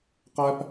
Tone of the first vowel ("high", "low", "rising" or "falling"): high